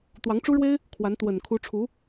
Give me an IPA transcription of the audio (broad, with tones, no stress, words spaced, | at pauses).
t̪wɑ˧˥ŋʈ͡ʂu˥ɻwe˥ɪ̯ | kʰwa˧˥n t̪wə˨˩n kʰu˧˥ʈ͡ʂʰu˧˥